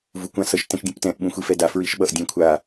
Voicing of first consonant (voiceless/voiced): voiced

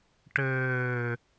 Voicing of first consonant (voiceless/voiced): voiceless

